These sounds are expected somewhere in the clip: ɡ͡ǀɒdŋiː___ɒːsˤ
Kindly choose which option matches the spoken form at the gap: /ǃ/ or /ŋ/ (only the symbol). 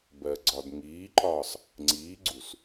ǃ